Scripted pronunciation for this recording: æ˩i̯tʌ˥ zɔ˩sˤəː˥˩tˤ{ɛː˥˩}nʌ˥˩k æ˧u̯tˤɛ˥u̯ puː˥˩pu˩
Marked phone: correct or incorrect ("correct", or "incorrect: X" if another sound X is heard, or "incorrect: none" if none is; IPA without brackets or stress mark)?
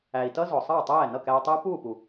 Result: correct